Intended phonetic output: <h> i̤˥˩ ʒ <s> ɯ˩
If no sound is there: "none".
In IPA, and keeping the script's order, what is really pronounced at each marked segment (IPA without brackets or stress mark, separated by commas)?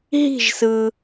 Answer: ɦ, s